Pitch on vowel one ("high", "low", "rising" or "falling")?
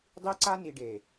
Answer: high